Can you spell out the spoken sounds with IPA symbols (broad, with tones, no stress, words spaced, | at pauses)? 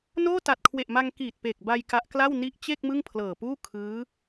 noː˥˩ta˨˩t̚kʰwe˨˩ʔma˧ŋ kiː˨˩t̚pe˨˩k̚ba˧j ka˦˥ʔkla˥˩w ni˦˥ʔ t͡ɕe˥˩k̚ mɯ˥˩ŋpʰlɤː˨˩puː˥˩ kʰɯː˦˥